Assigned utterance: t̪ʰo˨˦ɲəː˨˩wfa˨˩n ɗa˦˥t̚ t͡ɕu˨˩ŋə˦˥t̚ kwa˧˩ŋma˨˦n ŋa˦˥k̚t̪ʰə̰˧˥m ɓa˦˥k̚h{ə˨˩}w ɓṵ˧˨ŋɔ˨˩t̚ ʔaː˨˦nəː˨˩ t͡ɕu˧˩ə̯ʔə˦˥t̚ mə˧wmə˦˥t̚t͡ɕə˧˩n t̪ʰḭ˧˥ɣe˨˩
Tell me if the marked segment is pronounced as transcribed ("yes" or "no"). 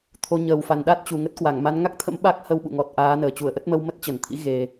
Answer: no